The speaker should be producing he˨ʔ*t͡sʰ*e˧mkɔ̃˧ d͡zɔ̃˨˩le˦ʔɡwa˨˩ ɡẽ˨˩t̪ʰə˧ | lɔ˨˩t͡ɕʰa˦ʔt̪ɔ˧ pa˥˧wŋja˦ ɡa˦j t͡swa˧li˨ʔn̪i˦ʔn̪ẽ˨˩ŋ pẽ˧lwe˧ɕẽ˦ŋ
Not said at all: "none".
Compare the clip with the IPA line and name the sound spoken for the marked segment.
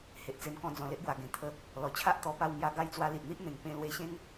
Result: t͡s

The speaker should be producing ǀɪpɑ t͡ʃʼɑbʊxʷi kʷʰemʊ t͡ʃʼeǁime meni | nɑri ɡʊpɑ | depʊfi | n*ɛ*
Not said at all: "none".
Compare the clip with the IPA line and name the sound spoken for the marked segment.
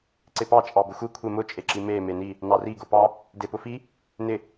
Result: ɪ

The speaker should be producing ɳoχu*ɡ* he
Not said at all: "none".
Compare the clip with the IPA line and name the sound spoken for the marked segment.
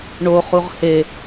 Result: ʁ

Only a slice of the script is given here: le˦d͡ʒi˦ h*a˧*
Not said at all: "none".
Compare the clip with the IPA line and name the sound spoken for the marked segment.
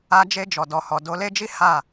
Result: a˦˨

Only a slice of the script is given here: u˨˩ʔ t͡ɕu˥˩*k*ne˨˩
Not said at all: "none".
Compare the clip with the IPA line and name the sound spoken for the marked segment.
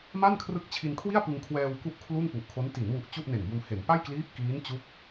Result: ʔ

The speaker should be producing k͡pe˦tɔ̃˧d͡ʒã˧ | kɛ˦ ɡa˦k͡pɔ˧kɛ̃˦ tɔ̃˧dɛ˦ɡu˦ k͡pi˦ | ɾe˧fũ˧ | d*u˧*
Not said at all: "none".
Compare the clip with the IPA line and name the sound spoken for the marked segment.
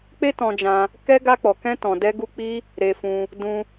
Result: ũ˧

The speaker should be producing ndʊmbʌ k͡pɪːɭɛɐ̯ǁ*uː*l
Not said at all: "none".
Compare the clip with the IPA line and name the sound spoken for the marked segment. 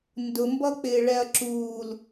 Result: uː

